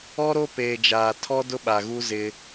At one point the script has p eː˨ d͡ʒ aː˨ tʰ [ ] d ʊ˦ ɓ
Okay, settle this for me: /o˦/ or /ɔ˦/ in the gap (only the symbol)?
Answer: ɔ˦